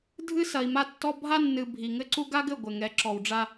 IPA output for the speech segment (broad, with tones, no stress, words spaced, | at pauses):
dʱɨ˦sɐ˨i̯ma˦tːɔ˦ bʱa˦nːɨ˨ bʱi˨ŋɘ˦ǀu˦ ɡa˦ɡɘ˦˨ ɡʷɘ˨ŋɛ˨˦ǁɔ˨wɖ͡ʐa˦